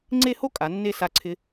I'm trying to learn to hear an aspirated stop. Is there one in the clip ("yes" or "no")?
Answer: yes